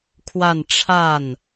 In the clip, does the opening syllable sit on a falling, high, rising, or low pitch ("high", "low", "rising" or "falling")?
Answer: falling